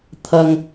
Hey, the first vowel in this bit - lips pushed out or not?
no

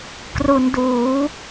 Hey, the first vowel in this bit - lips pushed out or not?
yes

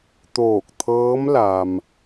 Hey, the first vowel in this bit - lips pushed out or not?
yes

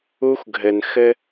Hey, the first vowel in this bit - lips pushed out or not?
yes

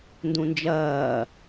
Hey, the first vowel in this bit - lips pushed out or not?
yes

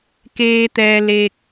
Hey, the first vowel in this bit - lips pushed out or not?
no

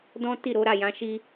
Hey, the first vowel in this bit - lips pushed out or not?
yes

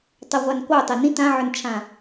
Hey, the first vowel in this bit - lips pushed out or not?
no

